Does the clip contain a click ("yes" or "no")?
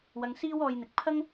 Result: no